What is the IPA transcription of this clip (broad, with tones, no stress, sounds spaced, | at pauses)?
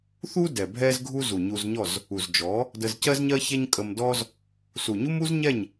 θ u˦ d ɛ˨ bʱ ɛ˦ z ɡʱ u˦ z u˨ ɲ u˧ z ɲ ɔ˦˨ z | u˨ z d͡ʒ ɔ˨˦ | d ə˧ z c ɜ˦ z ɲ ɜ˦ ç ɛ˦ ɲ kʼ ə˧ m d ɔ˦ z | s u˨ ɲ u˦ m u˦ z ɲ ɛ˦˨ ɲ